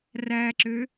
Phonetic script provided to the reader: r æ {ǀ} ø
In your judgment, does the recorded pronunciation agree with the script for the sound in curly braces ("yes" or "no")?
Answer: no